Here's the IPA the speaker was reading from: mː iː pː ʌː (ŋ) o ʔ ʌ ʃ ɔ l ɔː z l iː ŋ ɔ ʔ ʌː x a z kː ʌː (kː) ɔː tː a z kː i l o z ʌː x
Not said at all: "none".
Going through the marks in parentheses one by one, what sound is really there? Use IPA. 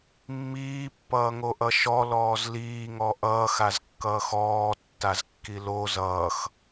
ŋ, x

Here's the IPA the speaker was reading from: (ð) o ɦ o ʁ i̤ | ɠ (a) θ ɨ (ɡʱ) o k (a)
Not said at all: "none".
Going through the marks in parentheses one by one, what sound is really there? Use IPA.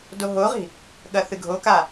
d, ɐ, ɡʱ, a

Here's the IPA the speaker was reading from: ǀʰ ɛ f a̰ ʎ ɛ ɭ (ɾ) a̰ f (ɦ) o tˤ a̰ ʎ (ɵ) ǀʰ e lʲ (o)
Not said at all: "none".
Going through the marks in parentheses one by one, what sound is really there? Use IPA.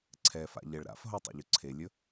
ɾ, ɦ, ɵ, ɵ

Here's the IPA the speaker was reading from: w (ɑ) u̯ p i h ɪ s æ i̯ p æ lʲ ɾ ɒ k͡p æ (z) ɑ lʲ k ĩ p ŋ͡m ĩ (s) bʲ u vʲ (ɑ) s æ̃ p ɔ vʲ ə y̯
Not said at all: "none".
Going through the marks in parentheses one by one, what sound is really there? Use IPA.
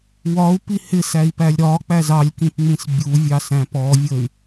ɒ, z, s, ɑ

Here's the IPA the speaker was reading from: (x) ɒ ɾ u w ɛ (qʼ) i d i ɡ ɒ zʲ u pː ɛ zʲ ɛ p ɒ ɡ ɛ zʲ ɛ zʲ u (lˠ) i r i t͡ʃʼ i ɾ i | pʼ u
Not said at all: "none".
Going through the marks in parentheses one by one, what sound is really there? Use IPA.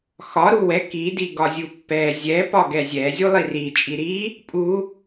x, k, lˠ

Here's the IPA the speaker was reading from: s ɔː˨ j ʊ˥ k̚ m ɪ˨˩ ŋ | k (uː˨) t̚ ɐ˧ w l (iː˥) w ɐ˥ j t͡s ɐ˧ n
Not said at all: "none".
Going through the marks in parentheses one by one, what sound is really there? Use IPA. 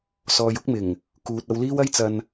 uː˨, iː˥

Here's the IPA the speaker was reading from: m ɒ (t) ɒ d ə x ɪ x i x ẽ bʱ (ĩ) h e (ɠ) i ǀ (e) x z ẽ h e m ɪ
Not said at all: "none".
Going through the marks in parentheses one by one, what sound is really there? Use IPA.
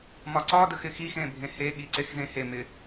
ǀ, ẽ, ɠ, e

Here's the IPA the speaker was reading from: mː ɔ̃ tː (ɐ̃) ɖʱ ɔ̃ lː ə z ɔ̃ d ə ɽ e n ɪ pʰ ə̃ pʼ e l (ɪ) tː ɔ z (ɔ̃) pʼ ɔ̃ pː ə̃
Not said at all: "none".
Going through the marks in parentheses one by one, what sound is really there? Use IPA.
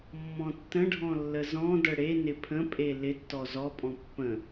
ə̃, ɪ, ɔ

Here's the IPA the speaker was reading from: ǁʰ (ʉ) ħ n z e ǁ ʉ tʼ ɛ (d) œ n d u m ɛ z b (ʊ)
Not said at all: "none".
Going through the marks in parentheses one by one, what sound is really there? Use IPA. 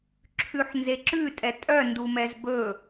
ʉ, tʼ, ɵ

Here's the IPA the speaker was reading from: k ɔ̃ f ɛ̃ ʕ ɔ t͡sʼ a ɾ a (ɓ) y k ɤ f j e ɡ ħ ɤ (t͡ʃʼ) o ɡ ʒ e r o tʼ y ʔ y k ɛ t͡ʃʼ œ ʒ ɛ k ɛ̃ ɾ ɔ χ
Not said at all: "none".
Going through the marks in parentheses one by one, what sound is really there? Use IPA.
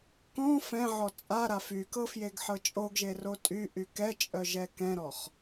f, t͡ʃʼ

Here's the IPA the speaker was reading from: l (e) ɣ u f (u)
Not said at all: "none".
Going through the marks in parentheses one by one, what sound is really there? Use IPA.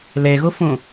e, ũ

